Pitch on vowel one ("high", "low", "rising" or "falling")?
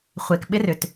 low